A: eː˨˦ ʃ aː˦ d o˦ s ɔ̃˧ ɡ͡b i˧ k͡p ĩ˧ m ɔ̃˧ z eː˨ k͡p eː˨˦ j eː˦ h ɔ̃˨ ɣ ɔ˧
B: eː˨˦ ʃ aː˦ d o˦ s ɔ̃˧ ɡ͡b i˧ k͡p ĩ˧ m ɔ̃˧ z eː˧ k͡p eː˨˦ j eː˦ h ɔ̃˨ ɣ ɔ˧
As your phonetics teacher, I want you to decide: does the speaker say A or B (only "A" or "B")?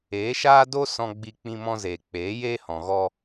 A